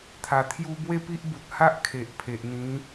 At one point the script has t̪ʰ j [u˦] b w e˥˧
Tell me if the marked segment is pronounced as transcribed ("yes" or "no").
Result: no